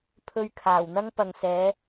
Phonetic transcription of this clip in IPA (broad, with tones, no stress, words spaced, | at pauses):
pʰɵ˧ɥkʰaː˨˩wn̪ɐ˥ŋ pɐ˨ŋ sɛː˨˧